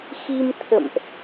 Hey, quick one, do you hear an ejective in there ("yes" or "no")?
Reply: no